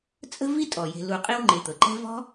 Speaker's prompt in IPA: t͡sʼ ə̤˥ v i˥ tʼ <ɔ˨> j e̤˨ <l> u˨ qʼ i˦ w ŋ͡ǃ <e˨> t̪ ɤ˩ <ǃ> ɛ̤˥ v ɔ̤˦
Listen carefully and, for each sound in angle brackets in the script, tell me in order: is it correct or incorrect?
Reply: incorrect: ɔ˩, correct, correct, correct

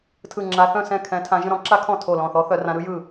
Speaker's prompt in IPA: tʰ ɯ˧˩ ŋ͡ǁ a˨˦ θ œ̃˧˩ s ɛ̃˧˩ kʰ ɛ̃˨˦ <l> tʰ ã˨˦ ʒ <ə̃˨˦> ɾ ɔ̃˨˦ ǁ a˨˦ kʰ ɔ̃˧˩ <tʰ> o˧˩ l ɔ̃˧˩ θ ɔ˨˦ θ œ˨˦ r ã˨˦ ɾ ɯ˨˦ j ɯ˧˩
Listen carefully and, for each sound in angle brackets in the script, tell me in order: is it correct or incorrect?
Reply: incorrect: none, incorrect: ə̃˧˩, correct

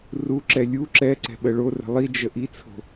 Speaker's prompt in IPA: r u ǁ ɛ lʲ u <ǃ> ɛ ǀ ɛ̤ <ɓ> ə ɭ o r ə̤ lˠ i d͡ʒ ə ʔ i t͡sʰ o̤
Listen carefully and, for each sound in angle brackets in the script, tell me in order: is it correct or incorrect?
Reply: incorrect: ǁ, correct

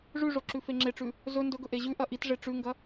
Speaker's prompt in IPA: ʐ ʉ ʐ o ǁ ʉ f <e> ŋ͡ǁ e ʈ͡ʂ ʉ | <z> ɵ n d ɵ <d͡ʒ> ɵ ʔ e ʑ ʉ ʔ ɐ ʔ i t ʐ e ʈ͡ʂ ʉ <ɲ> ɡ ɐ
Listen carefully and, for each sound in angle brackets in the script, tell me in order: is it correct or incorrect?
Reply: correct, correct, incorrect: ɡ, incorrect: ŋ

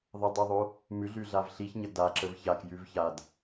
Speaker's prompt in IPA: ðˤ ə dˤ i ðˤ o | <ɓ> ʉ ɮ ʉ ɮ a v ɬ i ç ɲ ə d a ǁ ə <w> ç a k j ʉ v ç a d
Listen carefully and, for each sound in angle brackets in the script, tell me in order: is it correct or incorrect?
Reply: incorrect: m, incorrect: v

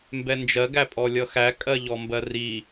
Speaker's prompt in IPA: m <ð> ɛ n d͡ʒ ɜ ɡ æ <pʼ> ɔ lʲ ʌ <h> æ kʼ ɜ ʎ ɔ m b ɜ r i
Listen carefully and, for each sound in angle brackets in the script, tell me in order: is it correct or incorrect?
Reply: incorrect: b, correct, incorrect: x

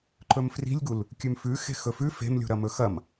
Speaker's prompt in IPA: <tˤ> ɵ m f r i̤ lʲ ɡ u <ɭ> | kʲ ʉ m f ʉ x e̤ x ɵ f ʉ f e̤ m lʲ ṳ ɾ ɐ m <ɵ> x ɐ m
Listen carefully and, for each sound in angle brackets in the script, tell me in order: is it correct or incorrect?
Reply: incorrect: ǃ, incorrect: l, correct

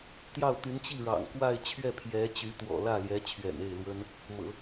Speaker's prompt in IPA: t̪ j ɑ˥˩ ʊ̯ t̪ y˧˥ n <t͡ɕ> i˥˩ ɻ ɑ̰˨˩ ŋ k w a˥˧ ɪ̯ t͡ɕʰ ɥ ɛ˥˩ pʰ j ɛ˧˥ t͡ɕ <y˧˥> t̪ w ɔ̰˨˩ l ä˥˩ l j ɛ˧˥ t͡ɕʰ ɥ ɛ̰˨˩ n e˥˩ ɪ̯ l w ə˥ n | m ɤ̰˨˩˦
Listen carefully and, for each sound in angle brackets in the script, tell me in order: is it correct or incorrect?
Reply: correct, correct

